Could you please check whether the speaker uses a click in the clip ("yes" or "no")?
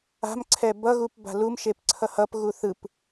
yes